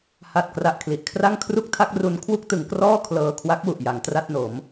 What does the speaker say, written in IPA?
ha˨˩t̚ kra˨˩ʔ kʰli˨˩ʔkʰra˥˩ŋ kʰru˥˩k̚tʰa˥˩k̚ru˧n kʰwu˥˩k̚tɯ˩˦ŋkrɔː˥˩ kʰlɤː˧kʰwa˦˥k̚wu˨˩ʔ ja˩˦ŋtra˥˩t̚no˩˦m

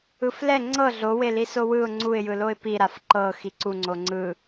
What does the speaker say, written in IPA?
ɯflɛ ŋ͡ǀɤ ɮoweli sowɯʊ̯ ŋ͡ǀuɪ̯jɯloɪ̯ piɾaf ǃɤxi ǀuŋ͡ǀo ŋ͡ǀɯ

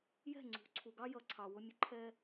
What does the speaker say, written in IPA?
jɛ̤˥˩ŋ͡ǀṳ˩˥ ǀʰu˩ɡɑ˥jʌ˩˥ ǀʰɑ˩wʊ˧mʲʊ˩˥ ǃʰɛ˧

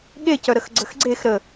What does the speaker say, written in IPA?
ɠecœ ɾəxɡ͡ǀəxɡ͡ǀex ɾə

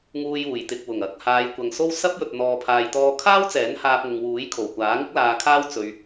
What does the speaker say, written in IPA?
ŋuː˧juː˨˩jt̪ɪ˨k̚ wʊ˨˩ŋɐ˨˥k̚ haː˨˧j kʷɐ˨ŋso˥w sɐ˥p̚ jɵ˨t̚n̪ɔː˨pʰaː˨jt̪ɔː˧ kʰaː˥wt͡sɛː˨˥n haː˧p̚ŋʊ˨ŋwuː˨˥j kʰo˨˩wkʷaː˨˥ ŋɪ˥k̚laː˧kʰaː˥w t͡sɵ˧ɥ

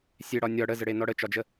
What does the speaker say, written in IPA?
sʲeɽɒ nʲɒ ɽəzəɽenɔ ɽət͡ʃɒd͡ʒə

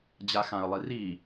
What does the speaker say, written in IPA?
d͡ʑaxãə̯lˠiri

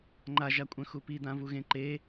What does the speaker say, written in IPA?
ŋ͡ǃaʒakʷʼœ̃xu pid̪ãvuɣẽ ǃe

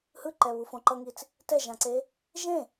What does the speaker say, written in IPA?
hɯǃɛβufõ ǃʌŋit͡s | tɛʒãǀe | ʒẽ

